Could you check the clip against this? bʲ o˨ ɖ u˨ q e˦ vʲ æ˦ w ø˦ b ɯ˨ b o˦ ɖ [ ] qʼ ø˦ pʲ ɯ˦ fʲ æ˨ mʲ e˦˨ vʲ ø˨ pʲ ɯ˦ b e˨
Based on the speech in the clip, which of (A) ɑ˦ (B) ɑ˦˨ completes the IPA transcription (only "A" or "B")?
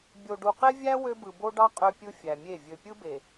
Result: A